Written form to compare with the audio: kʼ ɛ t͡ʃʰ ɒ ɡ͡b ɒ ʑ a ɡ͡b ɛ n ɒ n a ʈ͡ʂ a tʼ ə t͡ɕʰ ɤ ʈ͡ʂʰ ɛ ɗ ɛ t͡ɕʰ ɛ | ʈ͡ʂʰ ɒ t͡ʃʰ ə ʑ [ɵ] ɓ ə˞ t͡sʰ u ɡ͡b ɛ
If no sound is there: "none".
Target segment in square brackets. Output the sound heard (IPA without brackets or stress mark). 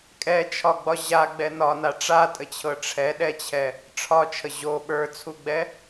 o